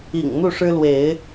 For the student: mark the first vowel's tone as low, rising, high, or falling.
low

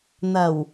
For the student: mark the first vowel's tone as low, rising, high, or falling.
low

